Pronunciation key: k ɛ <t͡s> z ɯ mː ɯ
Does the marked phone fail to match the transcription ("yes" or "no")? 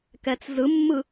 no